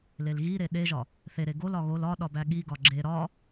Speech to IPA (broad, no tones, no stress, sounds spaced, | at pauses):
l e l ɣ i ɾ e ɗ e ʒ ɒ | θ e ɾ e ɡ o l ɒ ɣ o l ɒ ɗ ɒ b æ ɠ i ɡ ɒ ɡ͡ǁ e ɾ ɒ